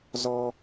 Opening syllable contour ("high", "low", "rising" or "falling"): high